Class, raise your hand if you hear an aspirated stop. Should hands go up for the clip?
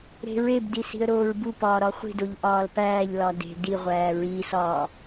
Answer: no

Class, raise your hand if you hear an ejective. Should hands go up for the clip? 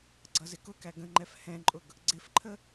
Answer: yes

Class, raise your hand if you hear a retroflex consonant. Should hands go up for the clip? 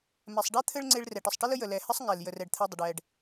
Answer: yes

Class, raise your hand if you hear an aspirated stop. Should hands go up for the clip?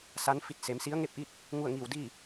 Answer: no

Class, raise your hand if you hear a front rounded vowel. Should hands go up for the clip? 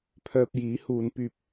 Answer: yes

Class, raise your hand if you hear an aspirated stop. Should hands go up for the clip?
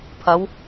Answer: yes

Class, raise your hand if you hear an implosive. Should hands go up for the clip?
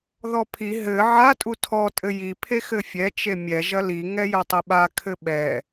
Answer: yes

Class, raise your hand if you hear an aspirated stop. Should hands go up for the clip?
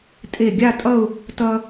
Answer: no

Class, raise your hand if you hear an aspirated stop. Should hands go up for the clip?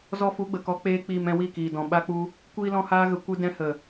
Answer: no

